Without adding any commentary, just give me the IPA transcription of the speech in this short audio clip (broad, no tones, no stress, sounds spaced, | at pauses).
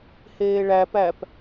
h eː ɭ æ p æ p